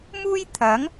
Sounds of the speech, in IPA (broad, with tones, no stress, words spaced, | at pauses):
muː˥jt̪ʰɐ˨˥ŋ